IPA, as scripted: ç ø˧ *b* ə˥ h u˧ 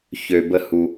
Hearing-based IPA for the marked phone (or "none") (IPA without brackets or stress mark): b